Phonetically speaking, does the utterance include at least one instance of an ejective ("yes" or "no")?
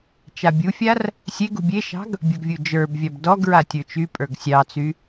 yes